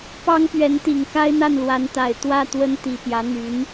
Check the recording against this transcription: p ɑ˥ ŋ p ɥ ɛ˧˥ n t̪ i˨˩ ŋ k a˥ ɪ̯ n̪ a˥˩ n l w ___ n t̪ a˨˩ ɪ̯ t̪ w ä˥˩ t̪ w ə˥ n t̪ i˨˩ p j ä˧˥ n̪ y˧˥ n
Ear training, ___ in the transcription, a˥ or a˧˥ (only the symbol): a˧˥